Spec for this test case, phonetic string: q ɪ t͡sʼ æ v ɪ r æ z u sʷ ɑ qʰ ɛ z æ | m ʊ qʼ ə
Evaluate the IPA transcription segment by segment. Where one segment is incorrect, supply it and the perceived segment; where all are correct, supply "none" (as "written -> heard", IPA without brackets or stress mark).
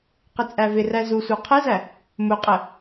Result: none